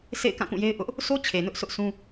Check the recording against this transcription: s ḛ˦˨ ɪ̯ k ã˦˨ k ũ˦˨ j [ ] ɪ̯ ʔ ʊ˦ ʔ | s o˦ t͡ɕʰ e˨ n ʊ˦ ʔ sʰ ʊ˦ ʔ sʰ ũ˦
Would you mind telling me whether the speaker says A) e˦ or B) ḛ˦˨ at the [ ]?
A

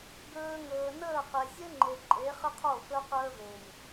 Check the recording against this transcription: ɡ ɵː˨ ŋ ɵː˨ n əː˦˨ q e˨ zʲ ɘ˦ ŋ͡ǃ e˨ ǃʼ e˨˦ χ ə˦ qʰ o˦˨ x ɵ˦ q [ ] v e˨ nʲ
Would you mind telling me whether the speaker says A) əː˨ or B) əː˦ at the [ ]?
B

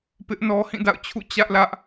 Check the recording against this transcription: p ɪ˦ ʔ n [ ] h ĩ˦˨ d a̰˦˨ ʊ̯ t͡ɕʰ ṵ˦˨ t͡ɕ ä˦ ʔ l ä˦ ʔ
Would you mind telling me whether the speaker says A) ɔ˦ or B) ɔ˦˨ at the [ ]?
A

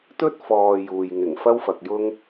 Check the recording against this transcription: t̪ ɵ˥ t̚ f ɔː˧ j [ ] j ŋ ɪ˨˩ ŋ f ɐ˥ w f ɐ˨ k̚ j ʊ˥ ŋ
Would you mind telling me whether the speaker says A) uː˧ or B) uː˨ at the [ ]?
B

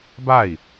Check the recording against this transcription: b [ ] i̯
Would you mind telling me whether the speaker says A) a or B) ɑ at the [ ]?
A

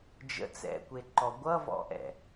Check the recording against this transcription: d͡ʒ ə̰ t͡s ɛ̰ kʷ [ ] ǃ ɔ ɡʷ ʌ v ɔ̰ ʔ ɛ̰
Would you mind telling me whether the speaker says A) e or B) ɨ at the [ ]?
A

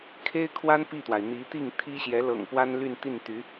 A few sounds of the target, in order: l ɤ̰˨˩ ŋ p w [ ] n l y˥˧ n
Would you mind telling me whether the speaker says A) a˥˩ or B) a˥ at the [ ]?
B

